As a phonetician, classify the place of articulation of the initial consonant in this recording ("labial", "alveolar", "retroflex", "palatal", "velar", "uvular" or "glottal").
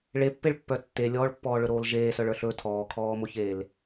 retroflex